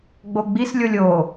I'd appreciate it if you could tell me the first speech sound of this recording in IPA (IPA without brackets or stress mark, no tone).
ɡ͡b